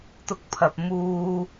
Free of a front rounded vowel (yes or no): yes